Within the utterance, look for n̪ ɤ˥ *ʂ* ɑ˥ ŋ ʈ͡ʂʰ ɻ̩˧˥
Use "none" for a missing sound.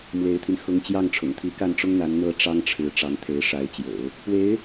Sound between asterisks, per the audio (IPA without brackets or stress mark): ʈ͡ʂ